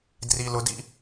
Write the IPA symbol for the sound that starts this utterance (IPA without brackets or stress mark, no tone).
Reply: d